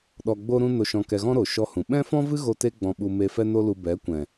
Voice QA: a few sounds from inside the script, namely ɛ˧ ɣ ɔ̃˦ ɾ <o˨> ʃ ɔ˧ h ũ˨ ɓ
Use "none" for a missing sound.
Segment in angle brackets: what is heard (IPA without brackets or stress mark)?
o˨